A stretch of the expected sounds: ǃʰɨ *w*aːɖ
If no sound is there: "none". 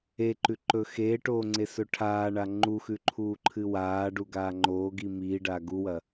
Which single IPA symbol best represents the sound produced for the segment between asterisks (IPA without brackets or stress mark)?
w